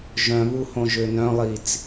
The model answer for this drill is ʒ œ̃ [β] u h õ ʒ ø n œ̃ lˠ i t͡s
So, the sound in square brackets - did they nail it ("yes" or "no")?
yes